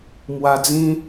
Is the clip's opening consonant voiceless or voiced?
voiced